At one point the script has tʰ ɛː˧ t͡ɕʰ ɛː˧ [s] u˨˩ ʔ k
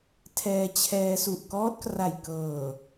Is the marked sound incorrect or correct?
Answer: correct